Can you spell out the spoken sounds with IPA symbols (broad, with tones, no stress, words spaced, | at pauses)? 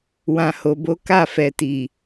wã˨ho˨bo˨˦ ka˦˨fɛ˨ti˨